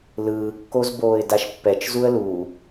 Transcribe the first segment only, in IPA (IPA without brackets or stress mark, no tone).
l